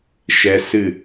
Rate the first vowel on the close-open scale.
mid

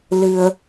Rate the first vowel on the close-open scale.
close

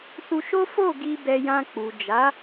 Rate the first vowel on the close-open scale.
close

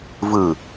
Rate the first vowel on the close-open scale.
close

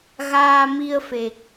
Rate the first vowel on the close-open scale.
open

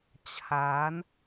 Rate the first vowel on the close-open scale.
open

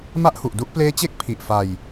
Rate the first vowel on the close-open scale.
open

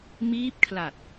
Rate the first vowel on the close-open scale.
close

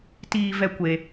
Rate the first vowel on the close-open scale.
close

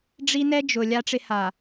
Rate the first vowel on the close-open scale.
close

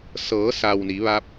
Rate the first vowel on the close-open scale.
mid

